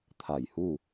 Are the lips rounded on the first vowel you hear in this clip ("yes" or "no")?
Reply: no